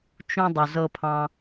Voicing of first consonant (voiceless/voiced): voiceless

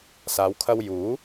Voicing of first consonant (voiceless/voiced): voiceless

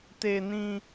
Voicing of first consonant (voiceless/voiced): voiceless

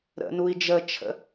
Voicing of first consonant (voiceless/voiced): voiced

